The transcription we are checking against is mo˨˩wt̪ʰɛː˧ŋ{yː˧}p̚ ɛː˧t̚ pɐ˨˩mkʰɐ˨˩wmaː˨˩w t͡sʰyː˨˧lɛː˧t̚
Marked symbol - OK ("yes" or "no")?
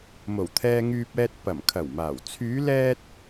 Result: yes